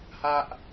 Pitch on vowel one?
high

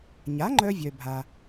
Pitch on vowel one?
rising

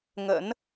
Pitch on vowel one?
rising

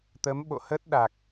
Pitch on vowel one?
rising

